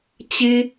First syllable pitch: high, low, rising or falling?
high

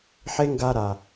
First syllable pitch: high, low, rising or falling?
high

